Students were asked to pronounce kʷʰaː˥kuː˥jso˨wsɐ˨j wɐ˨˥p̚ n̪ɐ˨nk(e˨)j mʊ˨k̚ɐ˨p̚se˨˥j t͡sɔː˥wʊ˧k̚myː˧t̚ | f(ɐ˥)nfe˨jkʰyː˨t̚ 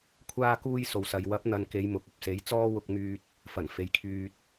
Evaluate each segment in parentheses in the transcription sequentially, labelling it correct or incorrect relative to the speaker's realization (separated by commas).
incorrect, incorrect